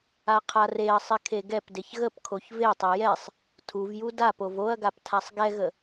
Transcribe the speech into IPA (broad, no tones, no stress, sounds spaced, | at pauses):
a qʰ a r e ɐ̯ sˤ ɪ kʰ e ɡ ɛ p d e ç ɣ ə p kʰ o ç v e tˤ e j ɛ sˤ | tʰ u v j u d a p o v o ɐ̯ ɡ a p tʰ a sˤ ɡ ɛ ɣ ə